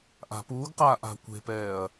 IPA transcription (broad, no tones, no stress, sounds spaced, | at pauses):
ʔ a̤ p uː ɡ q aː ʔ a̤ kʷ e̤ p ɛː ɐ̯